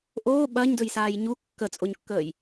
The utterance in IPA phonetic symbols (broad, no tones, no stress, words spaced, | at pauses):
ʔoː ɓɐɲdɵjsaːj ɲu kːət͡sʼoɲkːəːj